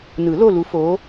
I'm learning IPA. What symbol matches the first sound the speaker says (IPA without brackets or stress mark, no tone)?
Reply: n